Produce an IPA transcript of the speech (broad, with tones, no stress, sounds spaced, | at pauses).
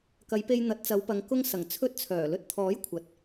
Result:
k ɐ˨˧ j p e˧ j n̪ ɐ˨˥ t̚ t͡s ɐ˨˧ w p ɐ˨˧ ŋ k ʊ˥ ŋ s ɐ˨˩ ŋ t͡sʰ ɵ˥ t̚ t͡sʰ œː˨˩ l ɵ˧ t̚ t̪ʰ ɔː˨˥ j kʷʰ ɐ˨˥ t̚